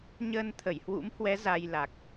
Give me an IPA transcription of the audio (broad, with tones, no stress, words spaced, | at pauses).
ɲəː˧nt̪ʰə˧˩jhwṵ˧˥mhwɛ˨˦ za˧jla˨˩k̚